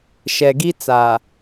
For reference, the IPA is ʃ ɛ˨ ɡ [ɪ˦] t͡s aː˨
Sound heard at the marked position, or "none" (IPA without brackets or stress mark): i˦